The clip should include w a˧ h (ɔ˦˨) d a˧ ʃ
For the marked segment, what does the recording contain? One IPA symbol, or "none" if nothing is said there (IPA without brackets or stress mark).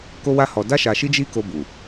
ɔ˨